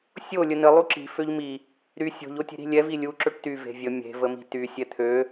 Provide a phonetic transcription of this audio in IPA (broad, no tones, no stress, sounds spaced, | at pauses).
sʲ o lʲ ə n ə lˠ u ǁ i̤ f ø ʎ m i | ɾ y sʲ o̤ ʎ o tʲ e̤ ɾ i̤ lʲ ɛ v i lʲ u ǁ ø ʈ t y v e̤ vʲ ə mʲ e̤ v ə m i̤ t y sʲ ɛ t̪ʰ ø